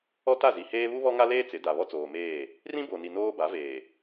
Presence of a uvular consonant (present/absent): absent